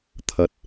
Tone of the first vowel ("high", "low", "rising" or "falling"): rising